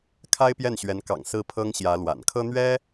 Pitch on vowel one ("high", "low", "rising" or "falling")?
high